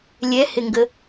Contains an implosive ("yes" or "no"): no